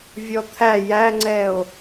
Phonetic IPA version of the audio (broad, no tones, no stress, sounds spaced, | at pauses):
vʲ ɔ t̪ʰ æ j æ ŋ͡ǀ ɛ o̯